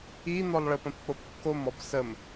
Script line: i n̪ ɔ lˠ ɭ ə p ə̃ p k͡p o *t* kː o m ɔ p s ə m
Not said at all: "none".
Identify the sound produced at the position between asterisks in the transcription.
p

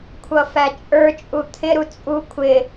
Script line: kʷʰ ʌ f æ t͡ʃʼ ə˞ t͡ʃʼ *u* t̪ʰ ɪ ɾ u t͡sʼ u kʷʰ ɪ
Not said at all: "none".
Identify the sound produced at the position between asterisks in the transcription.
u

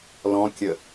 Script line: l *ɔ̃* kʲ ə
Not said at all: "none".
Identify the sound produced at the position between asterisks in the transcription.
ɔ̃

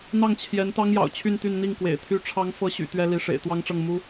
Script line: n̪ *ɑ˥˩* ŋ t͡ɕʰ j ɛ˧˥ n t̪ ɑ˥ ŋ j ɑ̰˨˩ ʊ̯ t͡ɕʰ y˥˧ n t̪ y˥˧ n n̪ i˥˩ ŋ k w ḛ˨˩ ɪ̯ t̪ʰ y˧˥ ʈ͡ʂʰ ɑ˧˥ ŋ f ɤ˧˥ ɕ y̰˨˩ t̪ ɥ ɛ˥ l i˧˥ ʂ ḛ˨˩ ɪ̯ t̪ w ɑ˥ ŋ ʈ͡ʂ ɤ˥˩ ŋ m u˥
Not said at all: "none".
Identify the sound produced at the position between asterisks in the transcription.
ɑ˥˩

